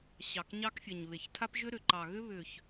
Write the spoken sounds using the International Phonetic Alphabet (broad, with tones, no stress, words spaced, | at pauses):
ɕɑ˨kɲɑ˦k fʲɛ˨ɲβe˨ç tʰa˦pʒʏ˦ ɾʏ˨ǃɑ˨ɣʏ˦ βʏ˨ç